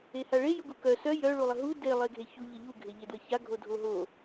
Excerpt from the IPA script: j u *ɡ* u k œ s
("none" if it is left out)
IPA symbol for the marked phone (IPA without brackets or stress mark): ɡ